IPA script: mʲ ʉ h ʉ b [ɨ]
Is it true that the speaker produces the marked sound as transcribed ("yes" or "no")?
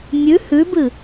yes